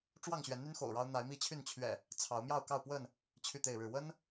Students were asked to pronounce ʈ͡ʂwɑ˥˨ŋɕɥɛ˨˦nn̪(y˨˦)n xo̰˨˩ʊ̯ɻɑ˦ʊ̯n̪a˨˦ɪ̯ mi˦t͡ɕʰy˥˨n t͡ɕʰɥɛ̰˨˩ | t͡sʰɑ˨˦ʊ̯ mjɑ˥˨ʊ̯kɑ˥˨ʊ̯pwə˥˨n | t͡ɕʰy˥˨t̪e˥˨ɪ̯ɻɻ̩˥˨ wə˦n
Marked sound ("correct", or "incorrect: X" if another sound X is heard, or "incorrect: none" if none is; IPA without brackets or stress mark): incorrect: y˦